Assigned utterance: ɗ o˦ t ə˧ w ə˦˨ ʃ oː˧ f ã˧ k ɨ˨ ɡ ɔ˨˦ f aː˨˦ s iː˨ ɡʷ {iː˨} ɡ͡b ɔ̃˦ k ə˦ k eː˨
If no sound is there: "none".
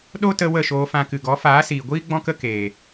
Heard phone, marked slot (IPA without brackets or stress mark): iː˦